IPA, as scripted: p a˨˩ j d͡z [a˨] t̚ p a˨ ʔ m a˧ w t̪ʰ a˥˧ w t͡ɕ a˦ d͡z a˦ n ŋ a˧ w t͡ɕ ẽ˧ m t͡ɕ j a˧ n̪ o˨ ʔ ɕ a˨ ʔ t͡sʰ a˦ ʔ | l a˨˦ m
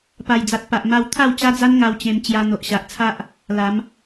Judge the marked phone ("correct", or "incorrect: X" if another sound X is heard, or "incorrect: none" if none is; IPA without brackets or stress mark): correct